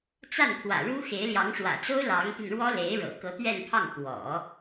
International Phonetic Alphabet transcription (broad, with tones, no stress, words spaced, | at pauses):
t͡sa˥˩npʰwä̰˨˩ɻu˥xe˧˥ɪ̯ ljɑ˧˥ŋʂwä̰˨˩t͡so˥ʊ̯ lɑ˧˥ŋt̪i˧nɻwɔ˥le˧˥ɪ̯ ɻɤ̰˨˩kɤ˧˥t̪ɥɛ˥˧npʰɑ˥˩ŋ t̪wɔ̰˨˩˦